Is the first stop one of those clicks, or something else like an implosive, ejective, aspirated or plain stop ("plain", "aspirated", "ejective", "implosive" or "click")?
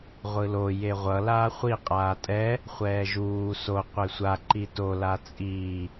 ejective